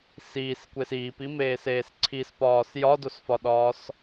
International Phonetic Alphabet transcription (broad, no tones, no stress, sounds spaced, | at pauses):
s iː s kʷ e s iː p i m eː s eː s ǀʰ i s p ɒː s j ɒ d o s f ɒ ɗ ɒː s